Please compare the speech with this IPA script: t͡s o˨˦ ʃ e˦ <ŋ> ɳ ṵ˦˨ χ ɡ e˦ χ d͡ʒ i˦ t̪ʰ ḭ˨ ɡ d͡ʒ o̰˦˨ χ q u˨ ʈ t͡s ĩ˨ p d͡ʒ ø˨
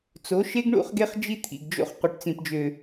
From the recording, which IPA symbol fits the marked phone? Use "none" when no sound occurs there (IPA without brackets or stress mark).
ɡ